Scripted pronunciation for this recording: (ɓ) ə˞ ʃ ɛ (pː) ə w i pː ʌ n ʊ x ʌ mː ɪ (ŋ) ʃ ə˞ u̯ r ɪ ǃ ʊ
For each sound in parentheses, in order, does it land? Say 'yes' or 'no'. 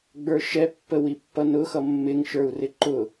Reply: no, yes, yes

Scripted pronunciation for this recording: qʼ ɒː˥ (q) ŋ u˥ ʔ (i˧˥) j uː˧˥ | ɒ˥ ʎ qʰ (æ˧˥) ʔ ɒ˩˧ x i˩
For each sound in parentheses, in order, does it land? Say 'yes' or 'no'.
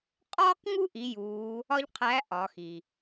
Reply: yes, yes, yes

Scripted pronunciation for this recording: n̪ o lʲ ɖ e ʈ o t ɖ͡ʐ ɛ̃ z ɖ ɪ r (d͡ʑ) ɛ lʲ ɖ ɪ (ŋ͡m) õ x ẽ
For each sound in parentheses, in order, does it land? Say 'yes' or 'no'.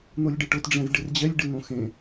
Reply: yes, no

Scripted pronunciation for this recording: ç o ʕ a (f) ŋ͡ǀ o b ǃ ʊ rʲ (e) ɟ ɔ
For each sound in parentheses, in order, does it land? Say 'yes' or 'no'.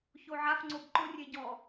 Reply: yes, yes

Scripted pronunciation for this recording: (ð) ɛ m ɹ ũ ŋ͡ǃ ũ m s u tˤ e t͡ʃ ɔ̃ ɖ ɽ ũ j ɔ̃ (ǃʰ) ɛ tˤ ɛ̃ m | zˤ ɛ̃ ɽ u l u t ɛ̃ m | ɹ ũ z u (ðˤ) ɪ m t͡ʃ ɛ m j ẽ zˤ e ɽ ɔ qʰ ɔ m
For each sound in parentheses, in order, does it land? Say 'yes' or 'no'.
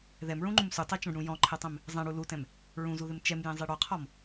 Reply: yes, yes, no

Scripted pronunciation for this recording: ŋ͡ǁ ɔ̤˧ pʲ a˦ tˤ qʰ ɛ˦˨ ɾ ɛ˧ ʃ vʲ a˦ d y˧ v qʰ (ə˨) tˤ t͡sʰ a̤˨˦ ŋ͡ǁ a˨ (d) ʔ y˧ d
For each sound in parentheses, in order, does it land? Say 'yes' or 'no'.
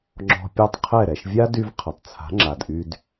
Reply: yes, yes

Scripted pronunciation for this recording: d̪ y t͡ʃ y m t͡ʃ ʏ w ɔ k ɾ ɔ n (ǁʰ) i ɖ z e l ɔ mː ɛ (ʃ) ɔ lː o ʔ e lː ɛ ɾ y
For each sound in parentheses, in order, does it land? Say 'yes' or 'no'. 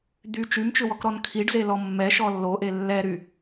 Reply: no, yes

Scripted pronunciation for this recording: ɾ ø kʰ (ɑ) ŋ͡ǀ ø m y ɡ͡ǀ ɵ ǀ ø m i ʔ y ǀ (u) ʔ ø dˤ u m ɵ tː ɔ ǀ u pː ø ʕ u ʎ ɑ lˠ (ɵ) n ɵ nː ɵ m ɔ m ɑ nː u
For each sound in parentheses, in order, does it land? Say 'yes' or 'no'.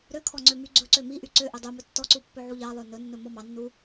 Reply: no, no, no

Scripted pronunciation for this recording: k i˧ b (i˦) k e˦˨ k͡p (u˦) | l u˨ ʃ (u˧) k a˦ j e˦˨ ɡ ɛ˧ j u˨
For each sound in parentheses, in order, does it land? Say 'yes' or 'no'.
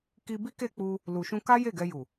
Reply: yes, no, no

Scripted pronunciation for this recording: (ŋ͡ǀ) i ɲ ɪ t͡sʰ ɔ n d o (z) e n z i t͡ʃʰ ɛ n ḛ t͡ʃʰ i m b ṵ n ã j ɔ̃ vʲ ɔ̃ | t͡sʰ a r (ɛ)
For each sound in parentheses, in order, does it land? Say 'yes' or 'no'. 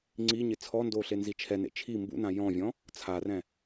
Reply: yes, no, no

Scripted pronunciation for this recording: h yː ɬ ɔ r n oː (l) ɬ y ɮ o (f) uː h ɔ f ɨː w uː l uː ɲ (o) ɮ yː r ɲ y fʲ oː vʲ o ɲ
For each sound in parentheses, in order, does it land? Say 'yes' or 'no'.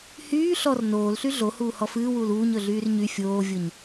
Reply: yes, no, no

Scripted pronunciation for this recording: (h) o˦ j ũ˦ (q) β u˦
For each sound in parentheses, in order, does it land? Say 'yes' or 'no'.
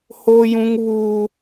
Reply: yes, no

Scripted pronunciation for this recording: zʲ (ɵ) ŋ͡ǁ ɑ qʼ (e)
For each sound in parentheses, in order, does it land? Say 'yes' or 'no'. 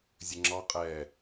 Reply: yes, no

